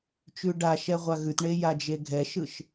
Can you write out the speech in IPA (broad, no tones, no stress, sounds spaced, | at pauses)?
t͡ʃ ʉ ɖ a ʃ ɛ ʁʷ a ɣ ʉ t ɳ e j a d͡ʒ e ɡʱ ɛ ʃ ɯ ʃ